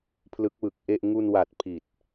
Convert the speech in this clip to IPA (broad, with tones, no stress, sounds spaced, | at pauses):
pʰ l ɯ˦˥ k̚ w ɯ˨˩ k̚ ʔ e˥˩ ʔ ŋ u˧ n w a˨˩ t̚ pʰ i˨˩ t̚